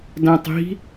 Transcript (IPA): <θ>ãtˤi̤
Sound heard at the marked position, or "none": d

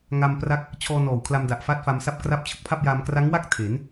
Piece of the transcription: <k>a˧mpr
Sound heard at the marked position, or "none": ŋ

